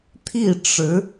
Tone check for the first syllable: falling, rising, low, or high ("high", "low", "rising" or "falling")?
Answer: falling